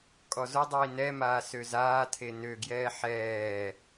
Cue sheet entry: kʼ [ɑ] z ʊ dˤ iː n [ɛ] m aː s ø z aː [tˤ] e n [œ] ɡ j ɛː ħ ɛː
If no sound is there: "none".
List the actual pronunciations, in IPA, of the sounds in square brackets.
ɔ, ɛ, tʰ, ø

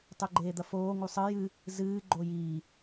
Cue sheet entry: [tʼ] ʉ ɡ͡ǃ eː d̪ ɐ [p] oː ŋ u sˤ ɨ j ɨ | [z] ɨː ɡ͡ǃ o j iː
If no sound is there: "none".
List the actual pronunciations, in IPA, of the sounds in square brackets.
tˤ, f, z

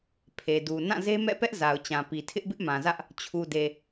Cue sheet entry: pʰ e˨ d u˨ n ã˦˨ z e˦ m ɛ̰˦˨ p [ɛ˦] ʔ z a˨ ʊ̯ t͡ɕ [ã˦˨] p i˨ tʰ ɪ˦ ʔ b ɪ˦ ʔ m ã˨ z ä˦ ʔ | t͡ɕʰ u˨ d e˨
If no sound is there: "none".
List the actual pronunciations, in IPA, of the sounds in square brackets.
ɛ˦, ã˨

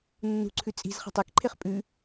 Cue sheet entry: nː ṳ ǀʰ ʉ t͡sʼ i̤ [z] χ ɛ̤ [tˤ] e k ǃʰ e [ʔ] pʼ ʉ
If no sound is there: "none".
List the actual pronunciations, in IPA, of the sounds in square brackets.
z, tˤ, χ

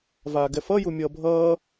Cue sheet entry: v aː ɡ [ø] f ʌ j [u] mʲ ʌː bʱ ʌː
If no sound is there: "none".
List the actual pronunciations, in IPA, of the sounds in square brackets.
ɛ, u

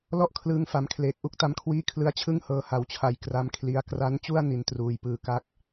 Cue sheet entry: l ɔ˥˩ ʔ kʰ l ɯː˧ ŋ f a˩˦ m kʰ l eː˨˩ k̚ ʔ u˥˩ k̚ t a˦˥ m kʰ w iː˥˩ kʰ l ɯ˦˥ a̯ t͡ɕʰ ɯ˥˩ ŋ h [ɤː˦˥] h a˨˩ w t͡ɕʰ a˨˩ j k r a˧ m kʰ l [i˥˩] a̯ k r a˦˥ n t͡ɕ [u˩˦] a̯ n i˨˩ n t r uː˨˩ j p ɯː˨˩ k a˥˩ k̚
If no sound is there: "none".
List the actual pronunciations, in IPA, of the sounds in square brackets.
ɤː˧, i˧, u˥˩

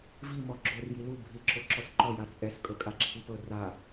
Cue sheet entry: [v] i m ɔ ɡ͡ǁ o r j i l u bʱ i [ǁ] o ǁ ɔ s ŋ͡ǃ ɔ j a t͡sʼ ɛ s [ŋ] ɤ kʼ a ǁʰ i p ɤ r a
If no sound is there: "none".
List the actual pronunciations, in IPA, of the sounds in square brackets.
v, ǁ, kʼ

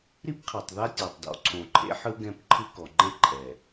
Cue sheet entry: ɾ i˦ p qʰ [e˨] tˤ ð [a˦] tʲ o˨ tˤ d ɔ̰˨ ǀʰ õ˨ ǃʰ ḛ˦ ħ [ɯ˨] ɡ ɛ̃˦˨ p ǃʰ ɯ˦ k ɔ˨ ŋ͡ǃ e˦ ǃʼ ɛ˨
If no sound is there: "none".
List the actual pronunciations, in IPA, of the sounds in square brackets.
e˨, a˦, ɯ˦

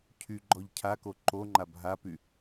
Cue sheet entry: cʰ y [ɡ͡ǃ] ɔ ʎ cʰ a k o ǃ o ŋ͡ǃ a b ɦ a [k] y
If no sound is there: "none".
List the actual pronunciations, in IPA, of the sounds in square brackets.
ɡ͡ǃ, p

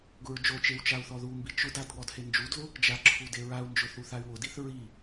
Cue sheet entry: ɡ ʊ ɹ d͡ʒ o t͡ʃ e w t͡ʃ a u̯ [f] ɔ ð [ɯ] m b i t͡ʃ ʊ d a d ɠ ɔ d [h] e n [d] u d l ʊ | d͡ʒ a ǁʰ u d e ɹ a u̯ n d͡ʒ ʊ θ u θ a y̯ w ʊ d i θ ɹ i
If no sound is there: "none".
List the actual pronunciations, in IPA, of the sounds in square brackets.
θ, u, h, d͡ʒ

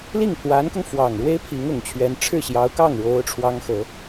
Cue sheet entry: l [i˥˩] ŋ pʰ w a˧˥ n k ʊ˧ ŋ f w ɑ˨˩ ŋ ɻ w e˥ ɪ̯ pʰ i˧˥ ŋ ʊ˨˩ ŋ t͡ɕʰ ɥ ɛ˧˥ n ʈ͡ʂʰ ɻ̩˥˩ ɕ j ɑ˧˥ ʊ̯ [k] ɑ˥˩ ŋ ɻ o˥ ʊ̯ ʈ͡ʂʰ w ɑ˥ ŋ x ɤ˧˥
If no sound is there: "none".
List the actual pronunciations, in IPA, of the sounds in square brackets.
i˥˩, k

